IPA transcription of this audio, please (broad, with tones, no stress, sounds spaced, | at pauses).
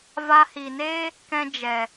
v a˧ h i˨ n eː˦ | k ɛ̃˦ d͡ʒ ɛ˨